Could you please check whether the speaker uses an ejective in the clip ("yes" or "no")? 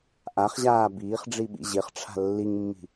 no